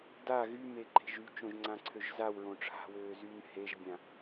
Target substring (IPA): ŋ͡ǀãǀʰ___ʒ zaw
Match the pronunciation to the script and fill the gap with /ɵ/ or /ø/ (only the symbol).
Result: ø